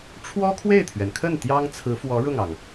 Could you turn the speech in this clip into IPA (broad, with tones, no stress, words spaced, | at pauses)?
ʈ͡ʂʰwɔ˥kʰwe˥˩ɪ̯t̪ʰɥɛ˩nkʰə˥˩n t̪jɑ˥ŋ t͡sʰɹ̩˧˥fwɔ˧˥ ɻʊ˥˩ŋɑ˩ŋ